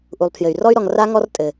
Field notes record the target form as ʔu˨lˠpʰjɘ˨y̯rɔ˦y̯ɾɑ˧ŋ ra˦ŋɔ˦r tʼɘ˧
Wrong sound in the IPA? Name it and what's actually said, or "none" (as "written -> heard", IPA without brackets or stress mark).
ɑ˧ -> ɔ˧